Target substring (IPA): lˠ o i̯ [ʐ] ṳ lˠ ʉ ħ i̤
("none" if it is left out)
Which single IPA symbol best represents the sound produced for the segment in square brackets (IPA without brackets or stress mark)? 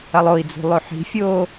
d͡z